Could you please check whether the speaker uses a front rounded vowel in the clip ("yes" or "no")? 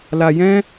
no